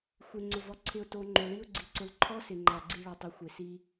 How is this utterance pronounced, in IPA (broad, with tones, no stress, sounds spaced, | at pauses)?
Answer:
xʷ e˨ ŋ͡ǀ ʊ˨ v ɔ˨ ǀʰ ɪ˧ ʊ̯ t o˧ ŋ͡ǃ o˨ ɭ i˦ ʊ̯ ɡ͡ǀ i˧ ǀ ʊ˧ l ǃʰ ɔ˦ s ɪ˨ ŋ͡ǃ a˧ ɡ͡ǀ i˦ ɭ ɔ˨ tˤ u˨ xʷ e˨ s i˦